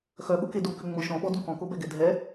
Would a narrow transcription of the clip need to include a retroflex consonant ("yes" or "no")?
no